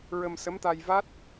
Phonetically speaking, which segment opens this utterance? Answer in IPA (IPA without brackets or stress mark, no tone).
ɹ